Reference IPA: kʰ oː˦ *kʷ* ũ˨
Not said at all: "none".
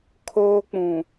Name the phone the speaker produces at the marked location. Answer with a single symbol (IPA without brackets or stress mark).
k͡p